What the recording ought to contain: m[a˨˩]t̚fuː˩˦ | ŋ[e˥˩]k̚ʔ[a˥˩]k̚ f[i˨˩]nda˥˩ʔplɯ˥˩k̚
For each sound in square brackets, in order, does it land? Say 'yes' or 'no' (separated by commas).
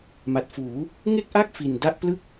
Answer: yes, yes, yes, yes